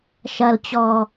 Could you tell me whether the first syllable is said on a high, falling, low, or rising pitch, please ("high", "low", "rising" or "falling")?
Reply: low